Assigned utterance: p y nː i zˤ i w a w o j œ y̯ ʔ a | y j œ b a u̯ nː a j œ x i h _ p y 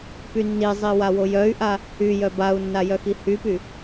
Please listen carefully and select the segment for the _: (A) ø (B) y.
B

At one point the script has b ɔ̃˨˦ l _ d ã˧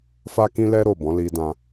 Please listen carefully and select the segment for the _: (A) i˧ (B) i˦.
A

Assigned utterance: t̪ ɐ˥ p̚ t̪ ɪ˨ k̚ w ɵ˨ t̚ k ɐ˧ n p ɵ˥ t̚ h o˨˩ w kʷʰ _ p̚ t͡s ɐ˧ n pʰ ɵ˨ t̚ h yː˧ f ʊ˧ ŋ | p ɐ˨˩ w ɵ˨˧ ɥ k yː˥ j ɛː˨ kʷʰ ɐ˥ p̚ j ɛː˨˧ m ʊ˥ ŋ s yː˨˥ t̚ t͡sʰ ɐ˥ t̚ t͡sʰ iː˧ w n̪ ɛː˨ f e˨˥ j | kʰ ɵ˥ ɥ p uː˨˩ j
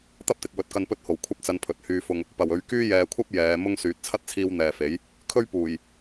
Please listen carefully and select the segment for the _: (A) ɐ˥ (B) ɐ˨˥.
A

